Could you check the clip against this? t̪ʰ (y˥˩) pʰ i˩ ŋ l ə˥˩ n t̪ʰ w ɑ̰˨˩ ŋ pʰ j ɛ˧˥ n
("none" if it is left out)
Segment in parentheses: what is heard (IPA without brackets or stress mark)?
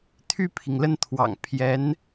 y˥˩